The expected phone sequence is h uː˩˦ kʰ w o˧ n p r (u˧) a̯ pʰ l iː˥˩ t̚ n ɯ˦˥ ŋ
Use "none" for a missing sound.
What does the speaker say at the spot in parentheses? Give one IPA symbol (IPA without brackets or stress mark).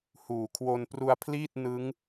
u˧